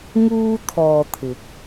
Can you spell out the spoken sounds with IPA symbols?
ŋ uː˧ t̪ʰ ɔː˨ t̪ʰ ɪ˨˥ k̚

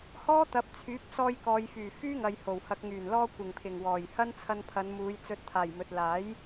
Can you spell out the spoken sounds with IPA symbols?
h ɔː˥ t̪ ɐ˨˥ p̚ t͡sʰ yː˨˥ p̚ s ɔː˧ j k ɔː˨ j f yː˨˩ f yː˥ ŋ ɐ˨ j h o˨˩ w h ɐ˨ k̚ ŋ yː˨˩ n l ɔː˧ kʷ ɪ˨˩ ŋ pʰ ɪ˨˩ ŋ w ɔː˨˩ j h ɐ˥ n t͡sʰ ɐ˧ n pʰ ɐ˨˧ n m uː˨˧ j t͡s ɵ˨ t̚ t̪ʰ aː˨˩ j m ɵ˨ t̚ l aː˨˥ j

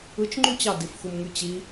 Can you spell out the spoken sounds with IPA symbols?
ɯ t͡ʃ ŋ͡ǃ y t͡ɕ ɑ d i f x u m ŋ y t͡ɕ i

